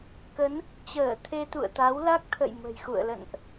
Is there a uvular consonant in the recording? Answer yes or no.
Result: no